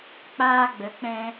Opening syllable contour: high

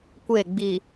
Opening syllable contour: falling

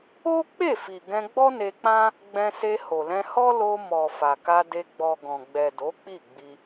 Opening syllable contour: high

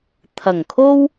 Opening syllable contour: low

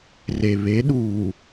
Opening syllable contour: low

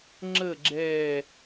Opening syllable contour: falling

